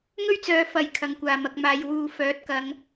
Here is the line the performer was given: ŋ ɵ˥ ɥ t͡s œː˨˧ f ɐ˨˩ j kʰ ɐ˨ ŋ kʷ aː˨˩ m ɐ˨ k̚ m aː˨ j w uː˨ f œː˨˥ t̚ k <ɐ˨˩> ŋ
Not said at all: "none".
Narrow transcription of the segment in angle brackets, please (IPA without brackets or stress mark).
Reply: ɐ˨˧